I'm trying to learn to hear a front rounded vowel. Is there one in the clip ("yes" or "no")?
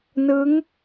no